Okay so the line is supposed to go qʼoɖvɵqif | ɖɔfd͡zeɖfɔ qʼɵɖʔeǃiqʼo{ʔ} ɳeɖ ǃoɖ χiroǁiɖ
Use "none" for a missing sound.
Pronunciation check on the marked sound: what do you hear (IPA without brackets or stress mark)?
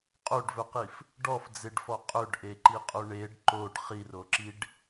none